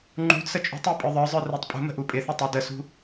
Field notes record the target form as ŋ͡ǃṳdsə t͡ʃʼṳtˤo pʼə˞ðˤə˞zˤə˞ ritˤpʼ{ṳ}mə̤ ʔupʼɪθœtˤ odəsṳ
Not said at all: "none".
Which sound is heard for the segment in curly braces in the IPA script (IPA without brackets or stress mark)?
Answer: ṳ